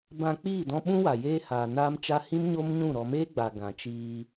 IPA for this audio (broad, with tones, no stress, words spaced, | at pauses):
bã˧k͡piː˦˨dɔ̃˧ ɓũ˦wa˨ jeː˦ haː˨na˦mt͡ʃa˦ hĩ˦m ɲo˦mɲũ˦˨ ɾɔ˨meː˦ ɡ͡ba˨ɡã˨t͡ʃiː˧